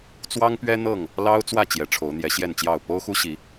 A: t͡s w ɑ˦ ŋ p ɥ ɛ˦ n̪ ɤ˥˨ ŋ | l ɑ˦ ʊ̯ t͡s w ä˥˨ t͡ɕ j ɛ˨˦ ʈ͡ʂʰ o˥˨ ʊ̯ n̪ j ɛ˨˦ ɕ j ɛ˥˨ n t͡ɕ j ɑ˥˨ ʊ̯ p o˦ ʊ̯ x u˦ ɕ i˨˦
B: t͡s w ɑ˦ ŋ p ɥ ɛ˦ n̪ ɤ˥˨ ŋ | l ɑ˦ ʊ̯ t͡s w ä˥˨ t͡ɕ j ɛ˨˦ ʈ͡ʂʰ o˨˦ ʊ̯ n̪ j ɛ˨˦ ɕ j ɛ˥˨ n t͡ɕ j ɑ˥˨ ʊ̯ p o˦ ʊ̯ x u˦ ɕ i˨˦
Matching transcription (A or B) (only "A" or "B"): B